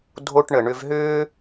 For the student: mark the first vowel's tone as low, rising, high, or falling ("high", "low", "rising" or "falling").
high